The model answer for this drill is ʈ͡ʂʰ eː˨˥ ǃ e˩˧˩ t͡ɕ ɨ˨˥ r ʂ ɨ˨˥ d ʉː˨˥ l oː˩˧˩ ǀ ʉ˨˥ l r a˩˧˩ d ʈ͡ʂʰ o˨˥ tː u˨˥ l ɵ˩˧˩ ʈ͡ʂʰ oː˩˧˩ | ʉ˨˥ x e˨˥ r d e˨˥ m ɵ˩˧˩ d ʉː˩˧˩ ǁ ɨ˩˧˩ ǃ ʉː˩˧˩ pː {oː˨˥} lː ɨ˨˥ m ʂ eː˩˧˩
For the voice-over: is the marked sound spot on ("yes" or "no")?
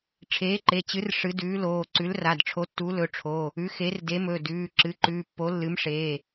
no